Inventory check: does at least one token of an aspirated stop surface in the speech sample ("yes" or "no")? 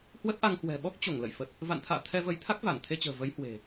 yes